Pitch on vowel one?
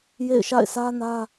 falling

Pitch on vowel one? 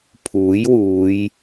rising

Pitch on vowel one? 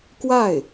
falling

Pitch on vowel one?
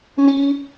high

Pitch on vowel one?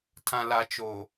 low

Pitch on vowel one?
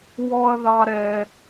high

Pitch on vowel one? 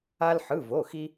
high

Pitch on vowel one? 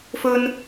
high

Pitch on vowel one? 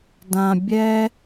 low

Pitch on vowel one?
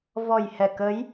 low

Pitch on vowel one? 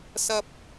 high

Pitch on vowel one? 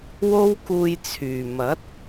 high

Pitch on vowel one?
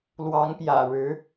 rising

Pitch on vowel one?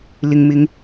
low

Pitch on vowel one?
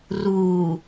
low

